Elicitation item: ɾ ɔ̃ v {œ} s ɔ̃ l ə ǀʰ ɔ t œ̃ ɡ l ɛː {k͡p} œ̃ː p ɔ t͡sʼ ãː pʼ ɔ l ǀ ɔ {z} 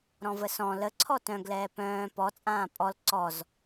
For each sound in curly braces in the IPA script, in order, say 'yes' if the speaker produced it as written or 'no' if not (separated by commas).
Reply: no, no, yes